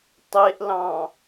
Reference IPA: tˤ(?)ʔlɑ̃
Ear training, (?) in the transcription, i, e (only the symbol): e